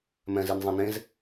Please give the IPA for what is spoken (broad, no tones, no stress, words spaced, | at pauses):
mɛ̃zinzˤɛ̃nẽz